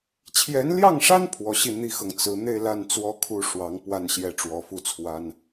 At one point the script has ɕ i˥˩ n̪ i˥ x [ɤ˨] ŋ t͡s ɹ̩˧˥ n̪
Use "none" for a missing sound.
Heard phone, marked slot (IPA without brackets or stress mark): ɤ˨